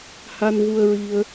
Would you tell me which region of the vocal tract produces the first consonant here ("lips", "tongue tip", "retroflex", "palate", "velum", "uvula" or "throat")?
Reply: throat